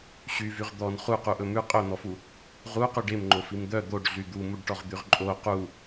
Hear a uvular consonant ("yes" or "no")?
yes